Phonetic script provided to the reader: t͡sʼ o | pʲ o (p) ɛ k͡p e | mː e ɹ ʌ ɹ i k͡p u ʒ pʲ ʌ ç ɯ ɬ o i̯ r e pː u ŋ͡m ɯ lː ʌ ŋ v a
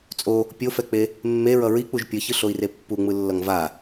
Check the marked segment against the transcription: incorrect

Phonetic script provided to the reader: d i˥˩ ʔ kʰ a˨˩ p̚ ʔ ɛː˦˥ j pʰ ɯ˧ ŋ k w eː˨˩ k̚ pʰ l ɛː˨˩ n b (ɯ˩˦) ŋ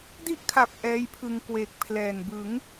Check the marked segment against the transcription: correct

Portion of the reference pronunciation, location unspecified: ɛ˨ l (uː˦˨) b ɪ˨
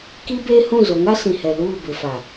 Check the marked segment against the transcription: correct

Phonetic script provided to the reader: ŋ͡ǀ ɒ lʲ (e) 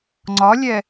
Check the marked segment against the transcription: incorrect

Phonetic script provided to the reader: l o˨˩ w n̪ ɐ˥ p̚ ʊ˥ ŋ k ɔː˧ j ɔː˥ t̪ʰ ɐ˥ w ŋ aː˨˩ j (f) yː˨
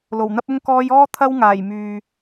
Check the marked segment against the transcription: incorrect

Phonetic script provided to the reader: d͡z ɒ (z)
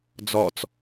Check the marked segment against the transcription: incorrect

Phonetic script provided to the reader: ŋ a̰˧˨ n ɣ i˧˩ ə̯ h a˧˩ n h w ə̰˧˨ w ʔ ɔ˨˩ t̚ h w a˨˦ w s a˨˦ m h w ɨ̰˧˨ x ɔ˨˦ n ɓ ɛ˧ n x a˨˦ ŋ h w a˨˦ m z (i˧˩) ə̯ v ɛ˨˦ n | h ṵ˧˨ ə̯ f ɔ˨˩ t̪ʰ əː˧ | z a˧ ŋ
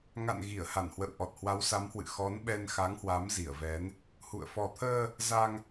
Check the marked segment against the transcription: correct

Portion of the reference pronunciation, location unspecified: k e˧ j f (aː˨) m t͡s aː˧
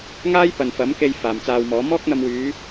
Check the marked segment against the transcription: correct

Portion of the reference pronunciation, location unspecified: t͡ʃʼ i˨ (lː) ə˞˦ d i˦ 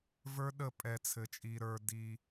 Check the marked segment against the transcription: incorrect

